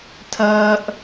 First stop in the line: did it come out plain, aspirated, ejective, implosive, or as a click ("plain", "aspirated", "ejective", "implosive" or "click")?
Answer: aspirated